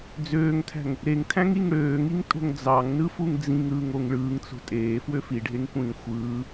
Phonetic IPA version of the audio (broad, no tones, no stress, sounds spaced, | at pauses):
d͡z øː ŋ tʰ æ̤ ŋ | ɾ e ŋ tʰ æ̃ ŋ i ŋ ɽ øː ŋ i ŋ tʼ o̤ ŋ d͡z ɑ ŋ n ɯ f u ŋ d͡z ĩ ŋ ɾ ɯː ŋ o ŋ ɭ ɯː ŋ t͡s o̤ tʼ eː f w ø f i ɖʱ e ŋ kʷ ĩː xʷ ɯː